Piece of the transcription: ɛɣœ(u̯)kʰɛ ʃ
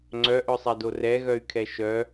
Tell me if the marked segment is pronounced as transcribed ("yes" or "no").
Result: no